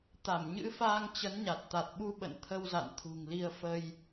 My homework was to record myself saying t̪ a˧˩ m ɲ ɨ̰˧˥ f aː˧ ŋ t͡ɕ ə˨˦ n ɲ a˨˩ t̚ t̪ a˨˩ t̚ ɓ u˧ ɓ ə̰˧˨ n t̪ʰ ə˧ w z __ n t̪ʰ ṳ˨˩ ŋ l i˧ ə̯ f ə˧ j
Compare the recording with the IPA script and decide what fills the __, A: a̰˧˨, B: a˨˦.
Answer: A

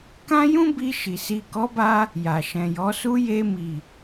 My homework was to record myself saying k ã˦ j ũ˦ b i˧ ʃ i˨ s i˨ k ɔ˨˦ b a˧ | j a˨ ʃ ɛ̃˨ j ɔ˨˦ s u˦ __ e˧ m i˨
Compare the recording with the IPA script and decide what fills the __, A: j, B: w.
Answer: A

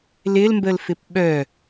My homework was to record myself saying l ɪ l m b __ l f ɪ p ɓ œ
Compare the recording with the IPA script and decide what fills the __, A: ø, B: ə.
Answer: B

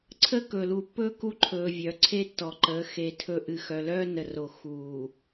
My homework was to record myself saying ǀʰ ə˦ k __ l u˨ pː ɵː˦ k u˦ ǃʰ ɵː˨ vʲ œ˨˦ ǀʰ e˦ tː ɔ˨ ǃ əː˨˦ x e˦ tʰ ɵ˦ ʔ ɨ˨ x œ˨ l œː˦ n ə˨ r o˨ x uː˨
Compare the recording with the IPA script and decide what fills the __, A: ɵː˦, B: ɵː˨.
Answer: B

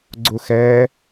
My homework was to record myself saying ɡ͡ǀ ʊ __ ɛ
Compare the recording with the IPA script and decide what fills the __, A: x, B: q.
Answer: A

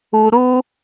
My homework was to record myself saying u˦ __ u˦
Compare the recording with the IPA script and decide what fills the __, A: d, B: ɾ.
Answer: B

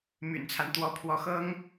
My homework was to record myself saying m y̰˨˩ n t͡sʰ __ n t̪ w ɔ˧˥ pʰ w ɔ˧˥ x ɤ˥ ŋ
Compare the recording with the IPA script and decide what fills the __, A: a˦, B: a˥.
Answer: A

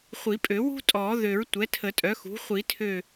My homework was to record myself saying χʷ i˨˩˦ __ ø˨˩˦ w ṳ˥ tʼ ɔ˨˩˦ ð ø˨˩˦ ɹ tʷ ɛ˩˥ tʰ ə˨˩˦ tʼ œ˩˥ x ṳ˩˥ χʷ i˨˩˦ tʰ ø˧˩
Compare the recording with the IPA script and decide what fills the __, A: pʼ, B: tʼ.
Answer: A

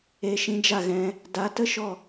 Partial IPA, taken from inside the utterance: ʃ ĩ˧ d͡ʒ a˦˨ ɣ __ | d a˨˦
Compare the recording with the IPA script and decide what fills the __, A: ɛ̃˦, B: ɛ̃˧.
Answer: B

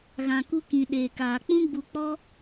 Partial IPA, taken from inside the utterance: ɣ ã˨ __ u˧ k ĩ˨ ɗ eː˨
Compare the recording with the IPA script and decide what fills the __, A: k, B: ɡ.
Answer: A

